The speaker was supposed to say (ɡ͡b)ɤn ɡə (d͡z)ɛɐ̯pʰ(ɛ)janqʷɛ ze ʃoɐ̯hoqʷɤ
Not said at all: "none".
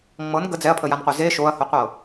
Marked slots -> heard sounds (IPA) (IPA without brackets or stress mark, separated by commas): ŋ͡m, d͡z, ə